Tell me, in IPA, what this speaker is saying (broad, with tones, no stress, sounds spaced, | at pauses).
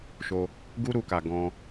ʃ o˧ | ɡ u˦ ɾ u˧ k a˨ ɡ ɔ̃˧